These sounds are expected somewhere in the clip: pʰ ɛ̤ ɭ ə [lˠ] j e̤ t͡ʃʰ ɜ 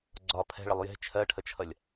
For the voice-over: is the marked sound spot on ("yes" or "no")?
yes